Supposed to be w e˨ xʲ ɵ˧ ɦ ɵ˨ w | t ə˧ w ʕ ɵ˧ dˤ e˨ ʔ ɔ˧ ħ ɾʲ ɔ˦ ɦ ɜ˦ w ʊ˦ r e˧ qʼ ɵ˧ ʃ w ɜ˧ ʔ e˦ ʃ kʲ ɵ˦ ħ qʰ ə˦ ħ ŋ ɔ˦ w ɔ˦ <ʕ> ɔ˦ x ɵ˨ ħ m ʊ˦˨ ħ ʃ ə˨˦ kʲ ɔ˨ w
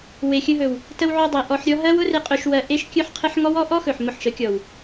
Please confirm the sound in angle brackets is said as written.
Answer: no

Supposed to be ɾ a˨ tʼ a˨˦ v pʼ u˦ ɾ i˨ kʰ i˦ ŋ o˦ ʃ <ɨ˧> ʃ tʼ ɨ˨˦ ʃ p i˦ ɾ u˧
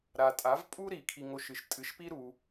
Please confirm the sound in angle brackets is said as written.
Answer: yes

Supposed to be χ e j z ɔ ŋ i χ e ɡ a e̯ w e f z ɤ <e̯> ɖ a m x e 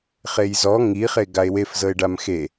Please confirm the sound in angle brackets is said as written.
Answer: yes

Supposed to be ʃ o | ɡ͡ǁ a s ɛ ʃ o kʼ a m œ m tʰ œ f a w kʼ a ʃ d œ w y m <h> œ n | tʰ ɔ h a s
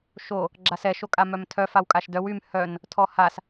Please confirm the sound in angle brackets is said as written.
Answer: yes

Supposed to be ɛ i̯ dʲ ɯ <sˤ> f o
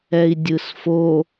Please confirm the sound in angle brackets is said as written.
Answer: no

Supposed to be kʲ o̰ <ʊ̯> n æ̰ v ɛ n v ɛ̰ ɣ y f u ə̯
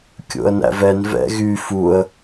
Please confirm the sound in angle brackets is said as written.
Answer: no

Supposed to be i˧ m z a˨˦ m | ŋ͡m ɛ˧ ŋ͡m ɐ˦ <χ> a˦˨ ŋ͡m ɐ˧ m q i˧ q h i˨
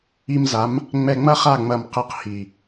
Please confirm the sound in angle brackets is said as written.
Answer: yes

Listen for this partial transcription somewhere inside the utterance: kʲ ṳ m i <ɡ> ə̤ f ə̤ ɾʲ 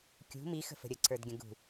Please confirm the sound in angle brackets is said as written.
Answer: no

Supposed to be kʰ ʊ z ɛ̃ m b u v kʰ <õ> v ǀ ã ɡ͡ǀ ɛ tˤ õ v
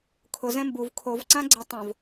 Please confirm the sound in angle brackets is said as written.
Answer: no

